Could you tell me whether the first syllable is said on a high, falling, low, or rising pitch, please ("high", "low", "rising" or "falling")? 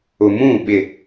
low